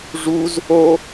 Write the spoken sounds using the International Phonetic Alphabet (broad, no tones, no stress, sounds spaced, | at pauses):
ʐ u z | o